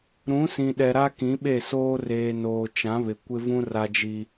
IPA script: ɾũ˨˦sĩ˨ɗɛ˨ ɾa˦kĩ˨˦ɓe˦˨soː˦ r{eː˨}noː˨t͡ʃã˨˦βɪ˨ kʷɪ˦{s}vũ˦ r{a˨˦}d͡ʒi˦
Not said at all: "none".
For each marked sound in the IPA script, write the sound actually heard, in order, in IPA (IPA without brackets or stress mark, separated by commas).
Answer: eː˨, none, a˦